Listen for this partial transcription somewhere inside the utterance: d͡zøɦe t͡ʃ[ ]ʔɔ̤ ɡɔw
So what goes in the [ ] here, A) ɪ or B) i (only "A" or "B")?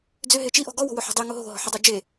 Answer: B